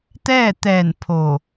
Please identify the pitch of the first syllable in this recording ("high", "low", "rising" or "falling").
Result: falling